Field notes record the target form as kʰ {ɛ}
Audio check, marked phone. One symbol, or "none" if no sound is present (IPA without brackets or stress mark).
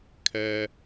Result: ɛ